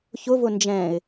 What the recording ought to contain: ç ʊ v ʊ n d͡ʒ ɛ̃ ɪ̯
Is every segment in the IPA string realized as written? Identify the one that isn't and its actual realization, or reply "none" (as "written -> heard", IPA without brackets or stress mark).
none